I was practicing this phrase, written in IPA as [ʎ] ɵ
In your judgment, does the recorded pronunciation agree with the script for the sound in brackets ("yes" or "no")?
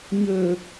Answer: no